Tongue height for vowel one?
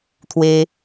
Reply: mid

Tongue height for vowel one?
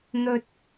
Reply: mid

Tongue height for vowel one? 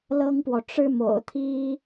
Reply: mid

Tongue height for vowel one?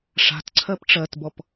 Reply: low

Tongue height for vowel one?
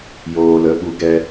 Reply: mid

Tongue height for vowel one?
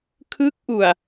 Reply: high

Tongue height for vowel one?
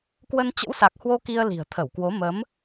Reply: mid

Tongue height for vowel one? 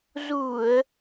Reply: high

